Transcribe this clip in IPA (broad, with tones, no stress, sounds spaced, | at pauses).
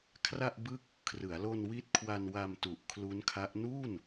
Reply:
kʰ r a˥˩ ʔ b ɯ˥˩ k̚ | kʰ r ɯ˩˦ a̯ l o˧ n w i˦˥ t̚ kʰ w a˧ n w a˧ m t u˨˩ ʔ kʰ l u˦˥ n kʰ a˦˥ ʔ n u˥˩ n